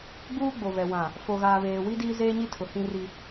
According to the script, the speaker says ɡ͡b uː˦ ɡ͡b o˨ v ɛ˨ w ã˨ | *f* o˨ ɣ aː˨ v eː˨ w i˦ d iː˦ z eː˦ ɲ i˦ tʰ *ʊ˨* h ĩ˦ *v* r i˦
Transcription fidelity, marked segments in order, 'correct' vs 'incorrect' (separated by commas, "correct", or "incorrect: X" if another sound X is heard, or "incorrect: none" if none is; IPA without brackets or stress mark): correct, correct, incorrect: none